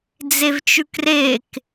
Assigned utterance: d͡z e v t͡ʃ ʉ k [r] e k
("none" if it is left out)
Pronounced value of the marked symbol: r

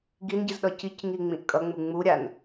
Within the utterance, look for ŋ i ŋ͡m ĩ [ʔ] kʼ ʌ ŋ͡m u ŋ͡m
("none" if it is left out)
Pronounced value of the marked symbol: ʔ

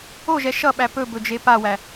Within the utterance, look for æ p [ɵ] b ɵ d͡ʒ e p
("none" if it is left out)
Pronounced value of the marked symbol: ɵ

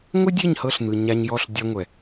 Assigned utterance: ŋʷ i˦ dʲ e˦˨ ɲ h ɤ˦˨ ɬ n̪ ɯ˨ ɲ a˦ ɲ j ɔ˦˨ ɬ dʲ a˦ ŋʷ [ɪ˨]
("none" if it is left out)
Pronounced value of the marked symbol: ɛ˨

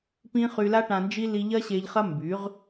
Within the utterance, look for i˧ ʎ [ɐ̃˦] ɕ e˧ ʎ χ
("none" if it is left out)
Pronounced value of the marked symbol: ɐ˦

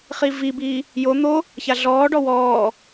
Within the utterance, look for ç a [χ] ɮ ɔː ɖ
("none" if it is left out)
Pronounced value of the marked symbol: none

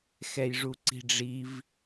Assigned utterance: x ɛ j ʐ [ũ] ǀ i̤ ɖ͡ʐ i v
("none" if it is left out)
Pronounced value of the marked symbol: u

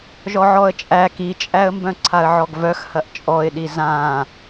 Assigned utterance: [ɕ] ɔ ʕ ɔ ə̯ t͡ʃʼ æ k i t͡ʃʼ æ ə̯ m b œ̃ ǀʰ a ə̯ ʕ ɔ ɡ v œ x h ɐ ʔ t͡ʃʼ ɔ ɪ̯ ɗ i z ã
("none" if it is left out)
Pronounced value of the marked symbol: ʒ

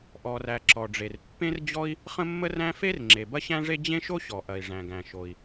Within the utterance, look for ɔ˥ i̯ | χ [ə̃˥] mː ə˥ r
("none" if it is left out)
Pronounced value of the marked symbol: ə̃˥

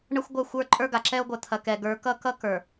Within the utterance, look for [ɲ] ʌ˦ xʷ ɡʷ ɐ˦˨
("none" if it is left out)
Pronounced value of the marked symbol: ɳ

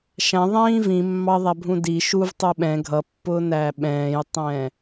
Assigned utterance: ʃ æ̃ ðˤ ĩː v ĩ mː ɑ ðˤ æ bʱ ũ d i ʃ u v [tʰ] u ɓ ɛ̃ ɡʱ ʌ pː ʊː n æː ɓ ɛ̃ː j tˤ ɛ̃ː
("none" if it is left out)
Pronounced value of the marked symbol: tˤ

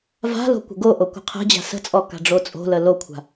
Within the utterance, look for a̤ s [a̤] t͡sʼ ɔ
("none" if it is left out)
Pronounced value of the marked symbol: ə̤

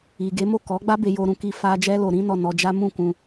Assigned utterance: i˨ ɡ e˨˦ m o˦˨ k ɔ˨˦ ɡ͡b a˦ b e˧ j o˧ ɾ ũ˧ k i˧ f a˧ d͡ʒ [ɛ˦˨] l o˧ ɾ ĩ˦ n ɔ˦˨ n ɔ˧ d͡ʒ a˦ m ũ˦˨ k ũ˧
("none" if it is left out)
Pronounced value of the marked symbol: ɛ˦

